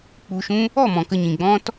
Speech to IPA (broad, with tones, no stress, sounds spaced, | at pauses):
k͡p u˧ ʃ ũ˦ | ɔ˦˨ m ɔ̃˨ k ə˧ ɲ ĩ˨ ɡ͡b ɔ̃˦ t